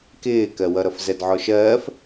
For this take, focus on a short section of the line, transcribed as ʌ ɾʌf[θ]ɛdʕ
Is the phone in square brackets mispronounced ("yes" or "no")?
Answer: yes